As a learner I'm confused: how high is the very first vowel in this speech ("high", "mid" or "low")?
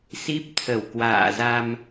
high